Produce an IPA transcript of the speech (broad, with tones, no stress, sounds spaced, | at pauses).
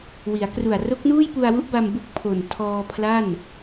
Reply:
w i˩˦ a̯ k r u˨˩ a̯ r o˦˥ k̚ n uː˥˩ j p u˧ a̯ w u˦˥ ʔ b a˧ m b u˥˩ k̚ pʰ o˨˩ n tʰ ɔː˧ pʰ l a˥˩ n